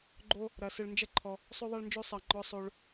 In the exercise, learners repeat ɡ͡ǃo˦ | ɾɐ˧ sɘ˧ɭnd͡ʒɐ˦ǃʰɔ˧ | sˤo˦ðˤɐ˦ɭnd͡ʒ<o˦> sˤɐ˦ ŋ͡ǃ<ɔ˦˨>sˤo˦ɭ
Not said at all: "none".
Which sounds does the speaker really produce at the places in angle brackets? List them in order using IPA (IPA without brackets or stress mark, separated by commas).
o˦, ɔ˦